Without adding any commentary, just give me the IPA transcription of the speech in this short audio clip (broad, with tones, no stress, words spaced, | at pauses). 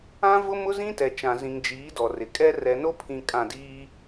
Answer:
ã˦vʊ˦ mʊ˦zĩ˦tɛ˨t͡ʃã˨ zĩ˨ŋd͡ʒiː˨˦ dɔ˨rɪ˨kʼɛ˦ rɛ˨no˦pʰĩ˨ kʼã˦˨diː˦